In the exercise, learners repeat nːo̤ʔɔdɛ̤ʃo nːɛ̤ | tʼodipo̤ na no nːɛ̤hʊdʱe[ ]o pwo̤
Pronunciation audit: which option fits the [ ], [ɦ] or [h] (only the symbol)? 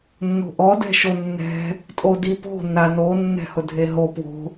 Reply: ɦ